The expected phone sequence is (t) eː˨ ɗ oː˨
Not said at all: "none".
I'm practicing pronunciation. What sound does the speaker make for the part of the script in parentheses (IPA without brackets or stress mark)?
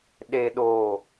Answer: ɗ